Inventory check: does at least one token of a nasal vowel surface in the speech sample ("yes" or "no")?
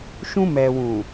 yes